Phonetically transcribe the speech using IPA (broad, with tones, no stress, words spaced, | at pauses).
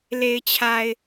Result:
le˨ɪ̯t͡ɕʰa˨ɪ̯